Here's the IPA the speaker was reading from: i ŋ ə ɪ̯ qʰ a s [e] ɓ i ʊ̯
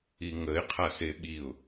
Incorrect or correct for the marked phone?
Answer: correct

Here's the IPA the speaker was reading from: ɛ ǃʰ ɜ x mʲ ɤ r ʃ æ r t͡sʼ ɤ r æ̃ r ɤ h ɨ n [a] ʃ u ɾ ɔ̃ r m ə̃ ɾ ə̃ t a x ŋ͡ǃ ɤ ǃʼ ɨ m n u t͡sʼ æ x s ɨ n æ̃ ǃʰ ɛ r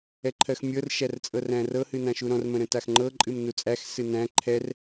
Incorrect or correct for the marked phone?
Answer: incorrect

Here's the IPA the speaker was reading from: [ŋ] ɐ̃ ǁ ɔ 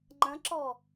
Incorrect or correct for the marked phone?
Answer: incorrect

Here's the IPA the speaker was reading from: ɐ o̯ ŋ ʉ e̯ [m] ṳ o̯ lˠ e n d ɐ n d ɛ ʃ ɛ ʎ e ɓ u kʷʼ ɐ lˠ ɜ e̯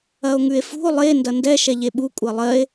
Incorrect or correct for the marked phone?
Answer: incorrect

